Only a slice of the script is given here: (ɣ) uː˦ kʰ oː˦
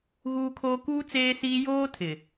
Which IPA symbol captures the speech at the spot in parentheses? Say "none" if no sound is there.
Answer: ɣ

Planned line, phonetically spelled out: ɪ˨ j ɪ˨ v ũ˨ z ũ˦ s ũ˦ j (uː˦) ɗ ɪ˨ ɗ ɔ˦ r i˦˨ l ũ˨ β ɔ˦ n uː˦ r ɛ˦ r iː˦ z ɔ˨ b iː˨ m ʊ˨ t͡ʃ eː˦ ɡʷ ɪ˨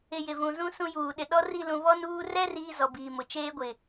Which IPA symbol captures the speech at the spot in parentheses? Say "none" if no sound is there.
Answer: uː˨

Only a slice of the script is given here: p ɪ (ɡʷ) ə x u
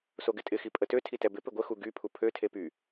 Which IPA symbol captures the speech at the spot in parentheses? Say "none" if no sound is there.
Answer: ɡʷ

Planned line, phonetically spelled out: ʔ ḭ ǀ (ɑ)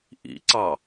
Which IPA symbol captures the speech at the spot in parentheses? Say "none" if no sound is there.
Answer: ɑ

